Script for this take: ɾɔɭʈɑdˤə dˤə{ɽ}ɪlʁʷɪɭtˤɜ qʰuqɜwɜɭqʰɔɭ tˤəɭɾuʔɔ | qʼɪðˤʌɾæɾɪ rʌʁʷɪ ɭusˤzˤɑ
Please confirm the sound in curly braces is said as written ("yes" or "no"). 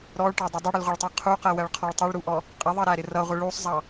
yes